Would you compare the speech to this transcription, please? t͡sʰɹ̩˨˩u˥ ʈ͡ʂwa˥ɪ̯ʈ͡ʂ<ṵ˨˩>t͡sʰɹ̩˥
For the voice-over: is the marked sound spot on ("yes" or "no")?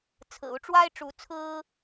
no